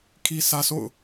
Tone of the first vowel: high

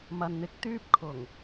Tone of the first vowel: low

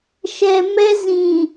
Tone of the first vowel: low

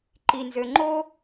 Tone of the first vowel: low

